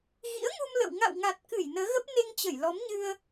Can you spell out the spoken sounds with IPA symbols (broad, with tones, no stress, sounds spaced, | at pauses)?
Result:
ɣ ḭ˧˥ ə̯ ŋ u˧ m l ə̰˧˨ w ŋ a̰˧˨ w ŋ a˨˩ t̚ k ɨ˧˩ j n əː˨˦ ɣ ə˦˥ p̚ n e˧ ŋ t͡ɕ ə˧˩ j l ɔ˨˦ m ɲ ɨ˧ ə̯